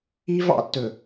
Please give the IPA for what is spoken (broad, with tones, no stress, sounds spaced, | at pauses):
i˦ v ɑ̰˦ tː ɵ˨